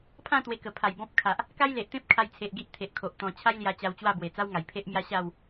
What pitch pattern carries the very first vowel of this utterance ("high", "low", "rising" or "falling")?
falling